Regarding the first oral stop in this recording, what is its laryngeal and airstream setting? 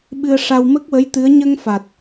implosive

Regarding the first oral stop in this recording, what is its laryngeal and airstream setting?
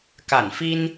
plain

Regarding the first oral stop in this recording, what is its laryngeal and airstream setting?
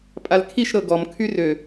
ejective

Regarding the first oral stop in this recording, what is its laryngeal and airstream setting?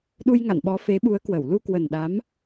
implosive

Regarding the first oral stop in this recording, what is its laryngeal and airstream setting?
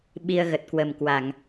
implosive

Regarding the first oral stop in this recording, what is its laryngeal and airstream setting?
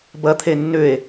plain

